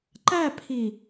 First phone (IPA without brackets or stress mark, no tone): ǃ